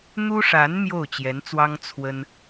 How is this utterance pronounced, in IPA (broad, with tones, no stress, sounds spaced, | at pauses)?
n̪ u˥ ʂ a˧˥ n m j o˥˩ ʊ̯ t͡ɕ j ɛ˧˥ n t͡s w ɑ˥ ŋ t͡sʰ w ə˥ n